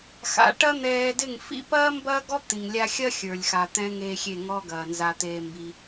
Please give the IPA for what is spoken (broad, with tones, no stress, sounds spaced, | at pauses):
x a̰˧ ʈ ɐ˦ n̪ ɛː˧ d ɪ˦˨ ŋ f ḭ˦ p ɐː˦ m b ɐː˦ ɡ ɔ˦ t̪ ĩ˨ ŋ lʲ a˧ xʲ ɐ˦ xʲ ə˞˨ lʲ x a˧ t̪ ɛ̃˦ ŋ eː˦ xʲ e˦˨ ŋ ɔː˦ ɡ ɐː˧ n z a˦ t̪ eː˦ m b i˧